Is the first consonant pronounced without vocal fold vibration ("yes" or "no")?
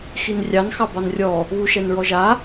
yes